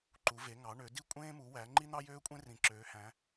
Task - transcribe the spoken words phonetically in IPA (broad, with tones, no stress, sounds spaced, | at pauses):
ǃ u˩˧ v e˩˧ ŋ ɑ˩˧ ɳ ø˩˧ d i˦ kʷʼ ẽː˦ m u˩˧ w æ˩˧ ŋ͡ǃ i˦ n̪ ɑ˦ j øː˦ kʷʼ ẽ˦ r ĩ˩˧ ǁ øː˩˧ h æ̃˩˧